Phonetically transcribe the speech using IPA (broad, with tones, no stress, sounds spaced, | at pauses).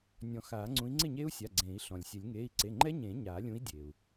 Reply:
nʲ ɔ̃˨˩˦ x aː˨˩˦ ŋ͡ǀ ũ˨˥ i̯ ŋ͡ǀ ɪ˥˩ ɲ eː˦˥ u̯ sʲ a˩˧˩ ɡ͡ǀ ẽː˨˩˦ i̯ ɬ ɔ̃˩ lʲ sʲ ɛ˨˩˦ lʲ ŋ eː˩˧˩ i̯ ǀ e˩˧˩ ŋ͡ǃ ɛ˦˥ ɲ ẽː˨˩˦ ɲ aː˨˩˦ lʲ ũ˨˥ i̯ dʲ eː˩ u̯